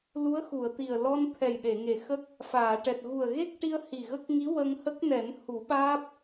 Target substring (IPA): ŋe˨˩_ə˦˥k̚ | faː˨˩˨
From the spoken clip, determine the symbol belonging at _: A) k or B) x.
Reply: B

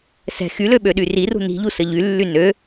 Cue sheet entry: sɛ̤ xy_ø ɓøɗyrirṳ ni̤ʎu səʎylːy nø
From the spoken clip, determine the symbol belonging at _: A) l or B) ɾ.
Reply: A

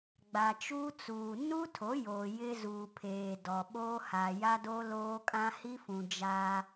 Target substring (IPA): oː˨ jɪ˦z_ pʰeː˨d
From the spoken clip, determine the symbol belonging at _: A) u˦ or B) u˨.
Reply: B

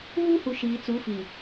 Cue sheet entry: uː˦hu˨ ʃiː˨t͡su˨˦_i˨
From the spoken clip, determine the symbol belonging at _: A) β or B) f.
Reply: B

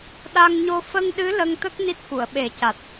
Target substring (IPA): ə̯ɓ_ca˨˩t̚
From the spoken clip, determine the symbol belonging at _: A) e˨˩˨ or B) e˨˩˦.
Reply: B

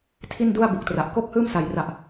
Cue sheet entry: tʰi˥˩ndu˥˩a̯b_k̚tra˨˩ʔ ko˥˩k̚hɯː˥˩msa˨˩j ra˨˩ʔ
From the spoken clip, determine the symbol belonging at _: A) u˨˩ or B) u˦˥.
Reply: A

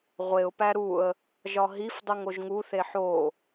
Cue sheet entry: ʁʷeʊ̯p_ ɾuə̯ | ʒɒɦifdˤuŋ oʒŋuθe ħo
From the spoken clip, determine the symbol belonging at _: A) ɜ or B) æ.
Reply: B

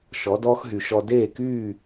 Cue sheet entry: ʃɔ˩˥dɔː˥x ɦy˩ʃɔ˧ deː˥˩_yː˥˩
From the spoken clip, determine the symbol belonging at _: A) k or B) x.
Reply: A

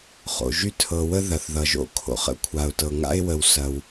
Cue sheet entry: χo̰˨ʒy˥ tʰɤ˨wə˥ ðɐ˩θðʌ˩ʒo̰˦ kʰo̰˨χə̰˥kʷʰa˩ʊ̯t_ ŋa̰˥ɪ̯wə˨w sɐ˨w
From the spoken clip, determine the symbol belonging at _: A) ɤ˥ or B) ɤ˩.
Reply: B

